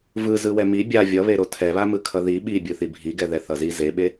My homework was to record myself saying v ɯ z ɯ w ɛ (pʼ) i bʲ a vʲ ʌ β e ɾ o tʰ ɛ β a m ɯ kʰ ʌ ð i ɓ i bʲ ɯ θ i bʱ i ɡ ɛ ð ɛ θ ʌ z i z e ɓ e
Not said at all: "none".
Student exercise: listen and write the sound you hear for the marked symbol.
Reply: m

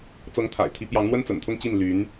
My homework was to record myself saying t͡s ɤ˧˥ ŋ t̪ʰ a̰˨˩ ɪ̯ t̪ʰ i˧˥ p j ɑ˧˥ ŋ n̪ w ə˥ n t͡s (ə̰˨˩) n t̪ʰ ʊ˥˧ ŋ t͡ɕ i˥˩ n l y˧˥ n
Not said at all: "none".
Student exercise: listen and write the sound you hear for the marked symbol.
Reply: ə̰˨˩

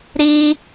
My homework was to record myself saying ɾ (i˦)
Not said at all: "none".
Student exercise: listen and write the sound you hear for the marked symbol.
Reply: i˦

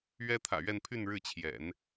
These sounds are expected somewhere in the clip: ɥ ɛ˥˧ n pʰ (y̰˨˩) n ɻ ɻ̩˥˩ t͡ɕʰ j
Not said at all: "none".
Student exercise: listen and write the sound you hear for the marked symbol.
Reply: y˥˧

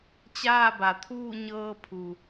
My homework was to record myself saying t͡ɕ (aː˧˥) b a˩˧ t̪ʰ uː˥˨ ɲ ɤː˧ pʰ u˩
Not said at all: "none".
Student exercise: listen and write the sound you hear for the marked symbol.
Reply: aː˥˨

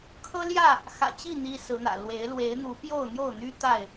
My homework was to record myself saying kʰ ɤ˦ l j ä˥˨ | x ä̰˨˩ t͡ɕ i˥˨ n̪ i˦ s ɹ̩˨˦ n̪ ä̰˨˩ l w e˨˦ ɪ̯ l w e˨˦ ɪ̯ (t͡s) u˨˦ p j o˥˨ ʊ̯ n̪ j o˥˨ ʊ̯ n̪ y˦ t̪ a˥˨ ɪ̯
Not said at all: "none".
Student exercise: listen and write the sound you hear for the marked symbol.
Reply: n̪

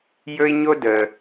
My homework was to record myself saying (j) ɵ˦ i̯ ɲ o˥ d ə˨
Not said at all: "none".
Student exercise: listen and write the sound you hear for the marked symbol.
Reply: j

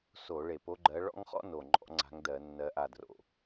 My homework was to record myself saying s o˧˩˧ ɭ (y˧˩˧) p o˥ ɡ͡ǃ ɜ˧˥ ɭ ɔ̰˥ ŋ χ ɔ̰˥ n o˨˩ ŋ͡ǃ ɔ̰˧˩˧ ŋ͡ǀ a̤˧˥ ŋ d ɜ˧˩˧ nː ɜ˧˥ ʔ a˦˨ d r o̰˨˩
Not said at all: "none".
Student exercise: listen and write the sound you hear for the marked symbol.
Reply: e˧˩˧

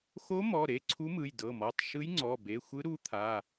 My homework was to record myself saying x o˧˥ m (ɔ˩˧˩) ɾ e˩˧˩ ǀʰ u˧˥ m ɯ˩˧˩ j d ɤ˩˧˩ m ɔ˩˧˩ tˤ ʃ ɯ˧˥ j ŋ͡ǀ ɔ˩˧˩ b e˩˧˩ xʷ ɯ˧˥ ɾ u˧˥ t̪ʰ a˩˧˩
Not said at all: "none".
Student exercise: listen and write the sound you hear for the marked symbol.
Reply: ɔ˩˧˩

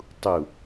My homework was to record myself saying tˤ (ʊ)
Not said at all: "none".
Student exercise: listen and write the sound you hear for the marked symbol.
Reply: u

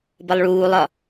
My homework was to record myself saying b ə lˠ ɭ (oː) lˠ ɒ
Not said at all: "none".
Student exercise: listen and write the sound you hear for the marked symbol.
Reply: uː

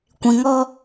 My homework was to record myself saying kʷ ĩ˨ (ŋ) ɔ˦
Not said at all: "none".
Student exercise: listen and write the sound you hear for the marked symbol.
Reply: ŋ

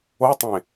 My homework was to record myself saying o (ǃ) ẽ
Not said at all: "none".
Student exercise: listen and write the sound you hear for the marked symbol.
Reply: tˤ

